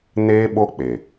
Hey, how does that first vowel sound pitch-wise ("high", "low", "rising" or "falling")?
high